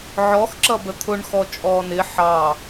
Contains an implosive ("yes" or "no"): no